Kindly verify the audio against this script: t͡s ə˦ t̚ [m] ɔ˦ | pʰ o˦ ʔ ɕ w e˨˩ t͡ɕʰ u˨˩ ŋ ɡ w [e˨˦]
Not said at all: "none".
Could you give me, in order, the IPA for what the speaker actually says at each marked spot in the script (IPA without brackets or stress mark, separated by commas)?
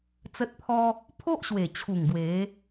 pʰ, e˨˦